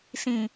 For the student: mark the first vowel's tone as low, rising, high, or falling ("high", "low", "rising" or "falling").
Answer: low